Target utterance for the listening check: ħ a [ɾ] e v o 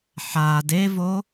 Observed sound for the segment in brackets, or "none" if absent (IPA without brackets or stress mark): d